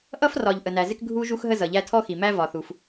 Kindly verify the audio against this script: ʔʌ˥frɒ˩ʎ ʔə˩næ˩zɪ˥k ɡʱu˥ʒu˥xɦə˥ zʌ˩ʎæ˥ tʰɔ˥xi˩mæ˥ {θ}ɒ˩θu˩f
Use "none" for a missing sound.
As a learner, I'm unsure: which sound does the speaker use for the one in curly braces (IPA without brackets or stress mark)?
v